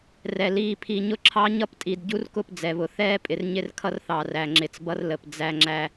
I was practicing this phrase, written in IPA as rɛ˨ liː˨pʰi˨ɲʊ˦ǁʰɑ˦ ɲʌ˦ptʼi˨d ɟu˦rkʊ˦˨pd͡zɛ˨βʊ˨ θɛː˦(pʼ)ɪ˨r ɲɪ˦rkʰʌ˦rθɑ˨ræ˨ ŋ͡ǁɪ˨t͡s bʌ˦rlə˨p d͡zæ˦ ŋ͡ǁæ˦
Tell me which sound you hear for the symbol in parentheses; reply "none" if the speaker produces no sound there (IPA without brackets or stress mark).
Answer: pʼ